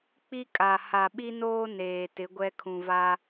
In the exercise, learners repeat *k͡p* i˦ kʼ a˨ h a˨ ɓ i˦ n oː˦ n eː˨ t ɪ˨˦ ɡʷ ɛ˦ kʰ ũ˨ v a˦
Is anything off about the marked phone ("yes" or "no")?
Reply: no